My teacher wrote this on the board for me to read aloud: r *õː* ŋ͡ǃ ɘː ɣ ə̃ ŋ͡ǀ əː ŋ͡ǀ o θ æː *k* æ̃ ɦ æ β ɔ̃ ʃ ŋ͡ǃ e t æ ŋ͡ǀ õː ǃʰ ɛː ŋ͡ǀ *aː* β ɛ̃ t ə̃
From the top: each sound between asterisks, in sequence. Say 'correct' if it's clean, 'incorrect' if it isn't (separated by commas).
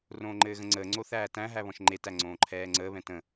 correct, incorrect, incorrect